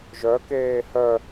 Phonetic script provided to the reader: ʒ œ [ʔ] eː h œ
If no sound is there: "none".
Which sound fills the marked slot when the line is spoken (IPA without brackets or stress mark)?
k